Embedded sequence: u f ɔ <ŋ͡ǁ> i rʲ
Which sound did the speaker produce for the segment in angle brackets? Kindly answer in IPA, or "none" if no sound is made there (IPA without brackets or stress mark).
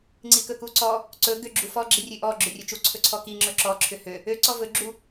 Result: ɡ͡ǁ